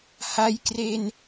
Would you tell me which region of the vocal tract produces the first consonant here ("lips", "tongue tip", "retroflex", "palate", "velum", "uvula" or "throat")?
throat